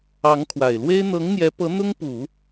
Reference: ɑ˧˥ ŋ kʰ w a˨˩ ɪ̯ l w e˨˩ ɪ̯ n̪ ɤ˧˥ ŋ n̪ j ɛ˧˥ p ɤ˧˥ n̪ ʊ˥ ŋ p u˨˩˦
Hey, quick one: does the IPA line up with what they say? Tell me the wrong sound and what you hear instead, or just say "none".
e˨˩ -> e˥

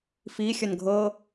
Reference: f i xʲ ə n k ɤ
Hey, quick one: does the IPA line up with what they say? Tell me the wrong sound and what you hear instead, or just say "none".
k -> ɡʱ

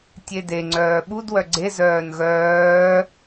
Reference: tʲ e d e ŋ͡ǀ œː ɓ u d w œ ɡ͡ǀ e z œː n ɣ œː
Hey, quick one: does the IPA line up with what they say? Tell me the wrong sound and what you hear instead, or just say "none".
none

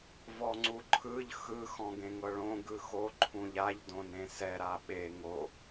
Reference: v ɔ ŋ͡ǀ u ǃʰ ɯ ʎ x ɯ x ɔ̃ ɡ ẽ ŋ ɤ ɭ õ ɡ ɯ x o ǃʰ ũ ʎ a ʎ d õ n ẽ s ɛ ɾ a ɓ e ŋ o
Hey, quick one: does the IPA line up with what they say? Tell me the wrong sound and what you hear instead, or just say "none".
none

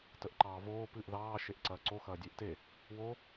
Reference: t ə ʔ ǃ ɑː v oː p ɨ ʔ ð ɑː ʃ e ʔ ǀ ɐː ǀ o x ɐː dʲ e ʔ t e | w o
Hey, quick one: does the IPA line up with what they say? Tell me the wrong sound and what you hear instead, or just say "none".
none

